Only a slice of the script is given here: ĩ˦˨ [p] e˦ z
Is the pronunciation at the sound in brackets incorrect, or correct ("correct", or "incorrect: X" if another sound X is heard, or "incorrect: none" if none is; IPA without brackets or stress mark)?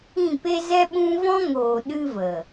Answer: correct